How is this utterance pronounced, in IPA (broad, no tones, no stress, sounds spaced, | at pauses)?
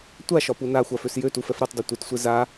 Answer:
tʷ a ʃ ɒ p u n a xʷ a f ø s j ø t u f ɛ f ɾ u tˤ dˤ ø tʷ e t sʷ e z a